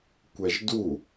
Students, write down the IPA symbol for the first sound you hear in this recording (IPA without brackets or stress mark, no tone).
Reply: kʷ